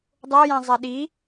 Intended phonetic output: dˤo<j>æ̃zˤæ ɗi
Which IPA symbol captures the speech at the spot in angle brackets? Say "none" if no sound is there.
j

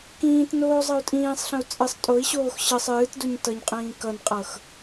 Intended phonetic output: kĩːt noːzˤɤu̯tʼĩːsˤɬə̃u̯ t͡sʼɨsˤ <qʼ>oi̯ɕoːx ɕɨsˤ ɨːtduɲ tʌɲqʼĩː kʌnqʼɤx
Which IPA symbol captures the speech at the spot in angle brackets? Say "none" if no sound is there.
tʼ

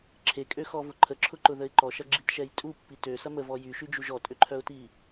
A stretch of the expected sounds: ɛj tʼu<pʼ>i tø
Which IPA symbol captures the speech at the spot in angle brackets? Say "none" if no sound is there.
pː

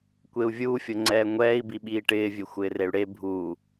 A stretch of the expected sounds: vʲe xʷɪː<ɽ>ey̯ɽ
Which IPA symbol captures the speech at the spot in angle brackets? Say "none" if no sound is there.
r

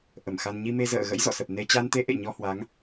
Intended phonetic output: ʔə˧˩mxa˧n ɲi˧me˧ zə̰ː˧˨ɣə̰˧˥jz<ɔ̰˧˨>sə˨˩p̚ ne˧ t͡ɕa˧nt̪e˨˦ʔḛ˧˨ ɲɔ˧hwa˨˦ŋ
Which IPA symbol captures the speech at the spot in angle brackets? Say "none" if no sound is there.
ɔ̰˧˨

